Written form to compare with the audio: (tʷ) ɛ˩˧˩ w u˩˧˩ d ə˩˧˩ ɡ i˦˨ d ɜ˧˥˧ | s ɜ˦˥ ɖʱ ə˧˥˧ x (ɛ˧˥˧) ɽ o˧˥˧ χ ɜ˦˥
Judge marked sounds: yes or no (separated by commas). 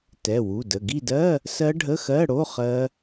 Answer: no, no